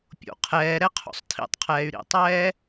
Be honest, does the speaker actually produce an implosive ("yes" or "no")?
no